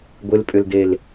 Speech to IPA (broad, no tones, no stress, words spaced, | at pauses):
ɡʷɪlpʼʏldel